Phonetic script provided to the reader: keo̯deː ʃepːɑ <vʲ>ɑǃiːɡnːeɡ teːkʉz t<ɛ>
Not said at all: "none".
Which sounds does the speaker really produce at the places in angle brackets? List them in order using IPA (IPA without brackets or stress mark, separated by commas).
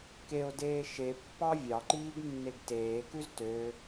vʲ, ø